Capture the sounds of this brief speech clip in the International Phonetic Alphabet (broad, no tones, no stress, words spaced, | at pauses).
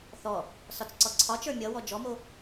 θɔ | sɒt͡sǀɔǀʰɒt͡ʃə˞ mʲʌwɔ d͡ʒɔmo